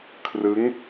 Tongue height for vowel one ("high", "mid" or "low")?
high